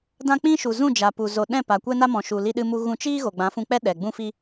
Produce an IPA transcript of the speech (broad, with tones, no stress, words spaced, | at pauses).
dã˦k͡pĩ˦ ʃu˨zũ˦˨d͡ʒa˨pu˨ zo˨ ɗɛ̃˦˨pa˨kʷɛ˦na˦ mɔ̃˨ʃu˨ li˧ɗɨ˧mu˧ ɣũ˧t͡ʃiː˦ ɣo˨ɡ͡bã˨˦fũ˧k͡pɛ˦ ɗɛ˨ɡ͡bũ˦fi˦